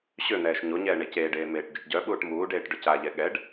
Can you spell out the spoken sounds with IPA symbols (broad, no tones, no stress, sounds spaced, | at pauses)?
ɕ ø n̪ ɛː ʃ ɲ o ɲ ɛː ɳ e c eː ɖ eː m eː ʈ ɟ o ʈ ɟ œ ɓ uː ʈ m uː ɖ eː ʈ ɖ œ c a ʎ ɛ ɠ ɛ ɖ